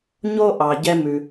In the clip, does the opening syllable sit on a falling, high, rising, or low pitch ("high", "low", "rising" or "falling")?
high